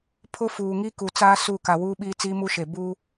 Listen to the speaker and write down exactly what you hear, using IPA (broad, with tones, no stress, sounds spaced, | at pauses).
pʰ ʊ˦ f uː˨ ŋ i˦ k u˨ t͡s aː˦ s u˦˨ k a˨ w uː˦ ɓ iː˦ t͡s iː˦ m u˦ ʃ e˨ b u˦